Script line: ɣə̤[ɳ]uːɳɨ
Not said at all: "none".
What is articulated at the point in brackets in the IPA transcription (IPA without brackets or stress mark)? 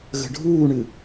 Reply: ɖʱ